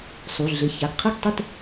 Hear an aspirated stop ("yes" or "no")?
yes